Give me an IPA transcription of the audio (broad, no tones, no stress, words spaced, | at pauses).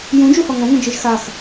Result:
jũd͡ʒu hɔŋɔ̃ŋũ d͡ʒiʒxax